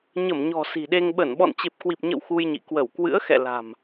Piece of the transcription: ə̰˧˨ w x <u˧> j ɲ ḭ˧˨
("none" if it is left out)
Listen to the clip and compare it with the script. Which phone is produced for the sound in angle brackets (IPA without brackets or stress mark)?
u˧